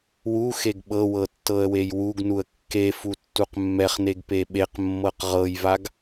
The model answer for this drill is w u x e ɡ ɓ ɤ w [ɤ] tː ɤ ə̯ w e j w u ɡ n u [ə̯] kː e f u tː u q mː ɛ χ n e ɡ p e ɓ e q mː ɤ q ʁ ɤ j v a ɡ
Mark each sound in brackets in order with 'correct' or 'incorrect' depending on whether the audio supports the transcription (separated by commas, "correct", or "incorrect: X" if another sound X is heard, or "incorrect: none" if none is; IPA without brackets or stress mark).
correct, correct